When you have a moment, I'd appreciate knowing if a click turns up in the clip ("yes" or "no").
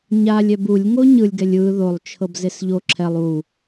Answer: yes